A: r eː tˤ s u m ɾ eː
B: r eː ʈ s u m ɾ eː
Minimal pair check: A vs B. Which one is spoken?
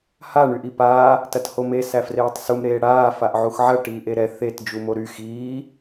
A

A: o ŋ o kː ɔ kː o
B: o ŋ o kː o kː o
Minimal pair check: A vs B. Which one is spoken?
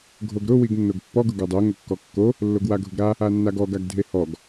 A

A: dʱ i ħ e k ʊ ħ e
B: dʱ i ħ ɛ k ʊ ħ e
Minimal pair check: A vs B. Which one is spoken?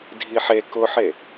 A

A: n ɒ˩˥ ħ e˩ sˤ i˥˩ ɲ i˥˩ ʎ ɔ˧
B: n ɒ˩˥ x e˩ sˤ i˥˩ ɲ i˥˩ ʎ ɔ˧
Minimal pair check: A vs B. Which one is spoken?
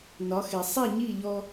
B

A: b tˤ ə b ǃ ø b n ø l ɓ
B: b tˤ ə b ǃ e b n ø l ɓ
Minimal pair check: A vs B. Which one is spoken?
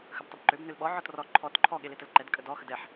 A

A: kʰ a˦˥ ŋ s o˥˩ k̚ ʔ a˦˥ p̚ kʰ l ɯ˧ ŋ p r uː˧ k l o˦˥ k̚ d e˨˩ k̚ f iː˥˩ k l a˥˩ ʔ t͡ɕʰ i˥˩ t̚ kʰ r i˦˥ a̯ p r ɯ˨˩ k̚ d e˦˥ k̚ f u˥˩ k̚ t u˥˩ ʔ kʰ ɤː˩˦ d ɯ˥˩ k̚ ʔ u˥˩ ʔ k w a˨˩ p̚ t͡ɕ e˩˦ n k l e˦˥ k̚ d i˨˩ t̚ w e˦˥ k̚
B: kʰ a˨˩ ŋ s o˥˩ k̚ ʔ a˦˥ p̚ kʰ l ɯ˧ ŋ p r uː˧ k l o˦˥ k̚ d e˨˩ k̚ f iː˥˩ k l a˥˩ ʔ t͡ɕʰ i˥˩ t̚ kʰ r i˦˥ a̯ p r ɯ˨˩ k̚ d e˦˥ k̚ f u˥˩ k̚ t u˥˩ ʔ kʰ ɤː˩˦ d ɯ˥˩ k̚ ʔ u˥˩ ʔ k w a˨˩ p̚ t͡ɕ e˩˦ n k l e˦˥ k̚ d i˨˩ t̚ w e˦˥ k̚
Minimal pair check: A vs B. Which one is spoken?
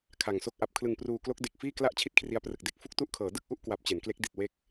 B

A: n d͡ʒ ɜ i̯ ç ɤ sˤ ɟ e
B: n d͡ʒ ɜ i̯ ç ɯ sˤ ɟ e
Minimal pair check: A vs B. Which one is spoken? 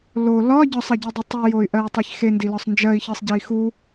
A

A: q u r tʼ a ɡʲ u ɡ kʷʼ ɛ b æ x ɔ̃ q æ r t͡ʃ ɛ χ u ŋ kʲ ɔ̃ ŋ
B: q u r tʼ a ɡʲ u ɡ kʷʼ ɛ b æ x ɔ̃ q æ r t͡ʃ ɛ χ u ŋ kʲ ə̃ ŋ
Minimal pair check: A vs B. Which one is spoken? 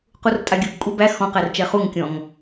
A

